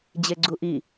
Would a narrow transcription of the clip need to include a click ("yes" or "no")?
yes